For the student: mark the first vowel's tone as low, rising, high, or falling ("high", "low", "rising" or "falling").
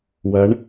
rising